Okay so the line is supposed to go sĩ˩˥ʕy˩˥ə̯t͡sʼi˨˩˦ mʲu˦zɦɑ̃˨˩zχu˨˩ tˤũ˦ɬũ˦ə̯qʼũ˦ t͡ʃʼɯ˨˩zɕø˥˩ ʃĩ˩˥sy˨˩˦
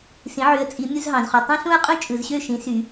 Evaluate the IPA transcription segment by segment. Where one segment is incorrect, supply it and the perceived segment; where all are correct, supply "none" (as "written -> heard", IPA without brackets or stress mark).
none